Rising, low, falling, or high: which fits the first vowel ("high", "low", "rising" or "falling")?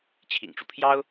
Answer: low